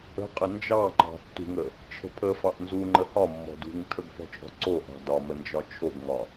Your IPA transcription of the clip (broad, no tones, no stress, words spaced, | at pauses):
ə̤qʼə nd͡ʒɑŋ͡ǃɑ̤ tːṳŋə | t͡ʃʰə̤pʰəfɑʔ nzuŋ͡ǃə hɒmːɔ̤ dṳŋtʰəɡ fɔ̤t͡ʃʼɔ̤ǀoʔɑ̤ dɒmə nd͡ʒɒt͡ʃʰoɡŋɒ